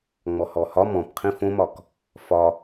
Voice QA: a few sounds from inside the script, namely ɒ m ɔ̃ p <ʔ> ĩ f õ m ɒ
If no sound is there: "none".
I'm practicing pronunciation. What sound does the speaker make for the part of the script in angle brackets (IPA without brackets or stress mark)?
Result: qʰ